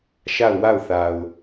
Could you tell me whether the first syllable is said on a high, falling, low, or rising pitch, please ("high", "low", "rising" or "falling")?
falling